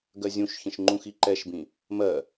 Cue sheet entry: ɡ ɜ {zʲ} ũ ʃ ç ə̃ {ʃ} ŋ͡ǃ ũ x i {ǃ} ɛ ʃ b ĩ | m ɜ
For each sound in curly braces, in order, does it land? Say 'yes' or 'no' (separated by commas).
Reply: yes, yes, yes